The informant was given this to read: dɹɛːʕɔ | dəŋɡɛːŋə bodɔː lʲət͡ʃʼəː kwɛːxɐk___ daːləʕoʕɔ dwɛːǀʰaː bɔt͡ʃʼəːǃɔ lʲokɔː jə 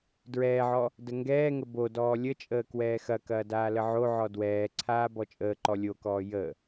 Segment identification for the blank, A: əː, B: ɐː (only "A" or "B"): B